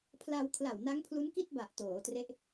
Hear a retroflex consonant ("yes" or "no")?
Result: no